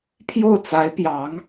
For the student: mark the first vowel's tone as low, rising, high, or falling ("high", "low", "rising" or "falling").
falling